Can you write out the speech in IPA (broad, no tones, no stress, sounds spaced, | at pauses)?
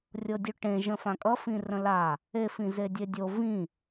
rʲ ɤ dʲ ʉ ʈ ẽ ʒ ə̃ f ã kʼ ʌ f ĩ r ə̃ l a | e f ĩ z e dʲ e dʲ o v ĩ